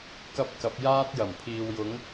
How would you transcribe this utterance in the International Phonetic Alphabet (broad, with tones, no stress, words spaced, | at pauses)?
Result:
kɐ˥p̚kɐ˨˥p̚ jaː˥t̚jɐ˨˩m pʰiː˨wjʊ˨˥ŋ